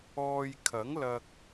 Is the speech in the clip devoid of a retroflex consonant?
yes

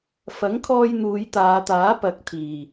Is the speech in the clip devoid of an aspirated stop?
no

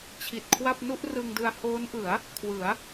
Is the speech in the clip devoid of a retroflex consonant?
yes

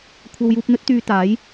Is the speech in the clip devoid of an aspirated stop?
no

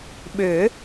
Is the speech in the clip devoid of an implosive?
no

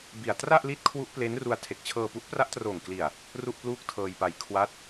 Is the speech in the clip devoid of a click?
yes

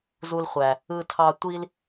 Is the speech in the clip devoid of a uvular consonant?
no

